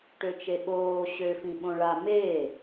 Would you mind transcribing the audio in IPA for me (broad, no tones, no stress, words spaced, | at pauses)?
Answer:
ʈøt͡ʃeɓoː ɕø fĩɓõɭa me